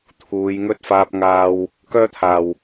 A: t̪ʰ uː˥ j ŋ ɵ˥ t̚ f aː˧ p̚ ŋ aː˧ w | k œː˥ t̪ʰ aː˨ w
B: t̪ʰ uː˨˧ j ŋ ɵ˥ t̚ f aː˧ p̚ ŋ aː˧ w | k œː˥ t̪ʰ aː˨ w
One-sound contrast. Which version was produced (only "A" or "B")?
B